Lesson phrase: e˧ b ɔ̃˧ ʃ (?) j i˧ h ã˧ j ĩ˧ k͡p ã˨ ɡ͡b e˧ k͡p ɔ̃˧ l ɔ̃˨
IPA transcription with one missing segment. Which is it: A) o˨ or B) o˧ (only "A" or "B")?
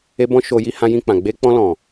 A